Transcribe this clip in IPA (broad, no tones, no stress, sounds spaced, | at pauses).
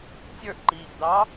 tʲ ə˞ ʔ ǃ iː ʔ d̪ ɑ